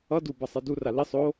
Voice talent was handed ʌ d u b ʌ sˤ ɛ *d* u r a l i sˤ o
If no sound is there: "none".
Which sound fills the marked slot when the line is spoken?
d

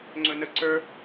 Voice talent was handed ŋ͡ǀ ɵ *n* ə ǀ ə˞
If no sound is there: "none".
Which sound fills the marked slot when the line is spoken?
n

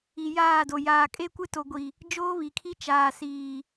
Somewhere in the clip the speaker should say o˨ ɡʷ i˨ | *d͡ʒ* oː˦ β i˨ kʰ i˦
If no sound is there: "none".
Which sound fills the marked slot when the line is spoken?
d͡ʒ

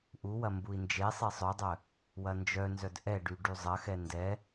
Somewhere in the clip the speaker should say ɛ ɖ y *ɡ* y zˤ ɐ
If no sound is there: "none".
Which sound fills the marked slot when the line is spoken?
ɖ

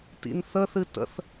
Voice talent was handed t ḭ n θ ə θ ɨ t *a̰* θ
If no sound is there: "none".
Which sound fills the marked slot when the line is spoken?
ə̰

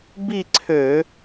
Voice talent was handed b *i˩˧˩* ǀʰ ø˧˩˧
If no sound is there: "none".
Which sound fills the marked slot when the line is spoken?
i˥˧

